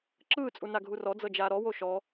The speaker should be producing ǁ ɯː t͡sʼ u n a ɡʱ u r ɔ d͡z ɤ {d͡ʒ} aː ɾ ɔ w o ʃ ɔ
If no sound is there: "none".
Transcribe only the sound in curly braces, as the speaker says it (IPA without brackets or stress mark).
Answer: d͡ʒ